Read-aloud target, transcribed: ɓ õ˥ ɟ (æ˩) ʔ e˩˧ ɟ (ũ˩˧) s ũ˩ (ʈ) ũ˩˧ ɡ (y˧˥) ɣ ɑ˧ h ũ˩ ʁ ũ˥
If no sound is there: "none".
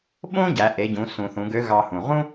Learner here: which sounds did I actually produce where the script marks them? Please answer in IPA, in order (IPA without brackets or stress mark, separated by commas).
æ˩˧, ũ˩˧, θ, ø˧˥